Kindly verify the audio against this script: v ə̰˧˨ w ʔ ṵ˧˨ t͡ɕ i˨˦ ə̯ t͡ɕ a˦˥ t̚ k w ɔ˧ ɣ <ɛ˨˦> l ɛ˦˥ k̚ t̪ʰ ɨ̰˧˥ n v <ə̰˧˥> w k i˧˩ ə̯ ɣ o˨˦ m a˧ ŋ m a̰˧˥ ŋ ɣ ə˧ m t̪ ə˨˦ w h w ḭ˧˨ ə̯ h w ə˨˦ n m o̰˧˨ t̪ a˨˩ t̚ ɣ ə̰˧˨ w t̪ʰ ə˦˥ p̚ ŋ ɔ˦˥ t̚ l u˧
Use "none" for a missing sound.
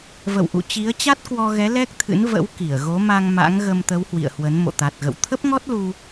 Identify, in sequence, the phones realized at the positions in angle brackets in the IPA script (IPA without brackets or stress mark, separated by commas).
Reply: ɛ˨˦, ə̰˧˥